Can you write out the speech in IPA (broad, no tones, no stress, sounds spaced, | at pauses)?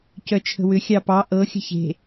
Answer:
c œ t͡ʃʰ ə̤ w ʏ xʲ ɑ p ɑ ʔ ɤ xʲ ə̤ ç e̤